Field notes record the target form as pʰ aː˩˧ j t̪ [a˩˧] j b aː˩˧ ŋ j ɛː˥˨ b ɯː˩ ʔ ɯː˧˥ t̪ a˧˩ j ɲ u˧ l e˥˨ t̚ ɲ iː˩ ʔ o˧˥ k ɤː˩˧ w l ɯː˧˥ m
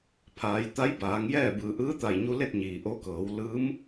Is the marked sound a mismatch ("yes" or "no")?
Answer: yes